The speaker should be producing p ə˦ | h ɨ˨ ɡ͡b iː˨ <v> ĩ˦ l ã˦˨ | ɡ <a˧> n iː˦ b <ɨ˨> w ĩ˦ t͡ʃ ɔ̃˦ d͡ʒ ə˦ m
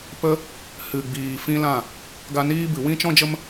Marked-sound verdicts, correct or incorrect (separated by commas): incorrect, correct, correct